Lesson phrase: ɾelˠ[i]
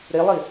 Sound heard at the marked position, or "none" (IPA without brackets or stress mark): i